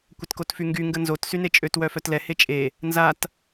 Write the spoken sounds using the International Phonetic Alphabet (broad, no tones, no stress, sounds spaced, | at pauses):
kʷ ə t k o t f y ŋ ɡ y ŋ ɡ ə n z o t s y n e t͡ʃʼ ø t w œ f œ t l ɛ h e t͡ʃʼ e | n z a t